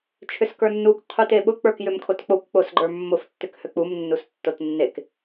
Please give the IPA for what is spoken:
t͡ʃʰʏskə˞nːukʷ qʰuteɓʊ k͡pə˞kjʏmkʰotk͡pokʷ k͡posɡ͡ǃə˞mːʊf tːʏkhøk͡pum nːustːotnːek

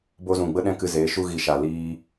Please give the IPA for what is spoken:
bo˧zũ˨ ɡ͡bə˦ɗɛ̃˦kɨ˧zeː˨˦ ʃu˧ɣi˨ʃa˨ liː˧

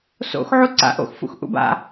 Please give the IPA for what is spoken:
so̰xʕu ǀa̰ ʔo̰xfṵx ʔṵba̰

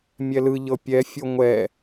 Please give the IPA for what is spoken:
mʲɛlɯʎɤ pʲɛfʲo ŋʷɛ

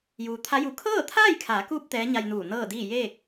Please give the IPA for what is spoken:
juː˩t̪ʰa˧˥ju˧˩ kʰɤː˥˨t̪ʰaː˥˨jkʰaː˩˧kuː˧p̚ t̪ɛː˧˥ɲa˧jnuː˧˩ nɤː˥˨diː˥˨ jeː˥˨k̚

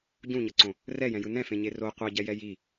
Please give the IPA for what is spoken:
ɟũɲʌǀõ | rɛjɛ̃jɯ nɛ̃fẽɲe ro qʷɛɟɛjɛ ji

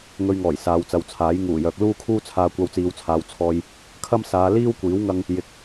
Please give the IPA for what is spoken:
ŋɵ˧ɥŋɔː˨˩j saː˨˧wt͡sɐ˨wt͡sʰaː˨˥j ŋuː˨˩jœː˨k̚ luː˥kʰuː˥t͡sʰaː˧ kʷɐ˧wt͡siː˨˧wt͡sʰaː˨w t͡sʰɔː˨j | kʰɐ˥msaː˨˧ liː˥w kʷiː˨˥wŋɐ˧ŋ | jɪ˨˥k̚

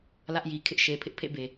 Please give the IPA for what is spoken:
lä˦ʔji˨ kʰɪ˦ʔʃe˨ pʰɪ˦ʔpʰḛ˦˨be˨

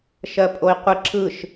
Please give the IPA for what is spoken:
ʃɜpʼoi̯qʷɪ ǁɯʃ

